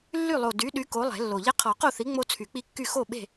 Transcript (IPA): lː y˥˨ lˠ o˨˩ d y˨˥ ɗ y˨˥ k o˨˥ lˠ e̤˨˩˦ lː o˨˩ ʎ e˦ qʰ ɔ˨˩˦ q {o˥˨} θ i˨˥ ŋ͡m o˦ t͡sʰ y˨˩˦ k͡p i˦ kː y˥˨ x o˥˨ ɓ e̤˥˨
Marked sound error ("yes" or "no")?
no